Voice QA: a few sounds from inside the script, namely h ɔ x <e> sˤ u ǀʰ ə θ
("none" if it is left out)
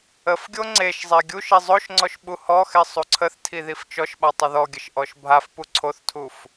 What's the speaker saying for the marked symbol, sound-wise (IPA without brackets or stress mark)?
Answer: e